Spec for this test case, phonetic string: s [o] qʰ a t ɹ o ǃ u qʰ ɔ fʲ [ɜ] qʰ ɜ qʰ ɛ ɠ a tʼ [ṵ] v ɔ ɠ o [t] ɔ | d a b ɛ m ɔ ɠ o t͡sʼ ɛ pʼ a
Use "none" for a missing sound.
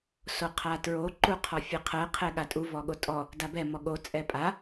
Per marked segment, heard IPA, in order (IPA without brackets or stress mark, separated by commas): o, ɛ, u, tʼ